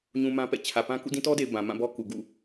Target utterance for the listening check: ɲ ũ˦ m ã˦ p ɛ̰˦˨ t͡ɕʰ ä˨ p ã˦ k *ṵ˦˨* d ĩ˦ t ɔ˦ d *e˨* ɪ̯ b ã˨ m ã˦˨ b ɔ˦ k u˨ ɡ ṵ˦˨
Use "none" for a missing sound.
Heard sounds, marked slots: ṵ˦˨, e˨

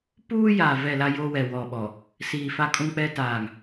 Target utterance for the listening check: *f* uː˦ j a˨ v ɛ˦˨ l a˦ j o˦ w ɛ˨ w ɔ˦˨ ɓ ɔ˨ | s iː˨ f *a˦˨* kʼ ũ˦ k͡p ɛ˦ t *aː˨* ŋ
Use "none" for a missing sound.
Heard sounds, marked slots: p, a˦, aː˨

